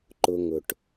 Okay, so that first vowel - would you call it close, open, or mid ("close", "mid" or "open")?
close